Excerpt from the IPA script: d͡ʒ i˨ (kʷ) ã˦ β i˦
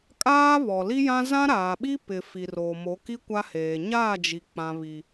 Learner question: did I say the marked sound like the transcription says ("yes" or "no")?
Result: no